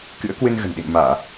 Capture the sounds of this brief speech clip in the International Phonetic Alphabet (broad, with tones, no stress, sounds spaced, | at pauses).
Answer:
k ɨ̰˧˥ ə̯ k w ɨ˧ n ɣ ə̤˨˩ n ɗ ḭ˧˨ n m aː˧˩˨